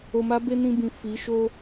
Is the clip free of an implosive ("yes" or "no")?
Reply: yes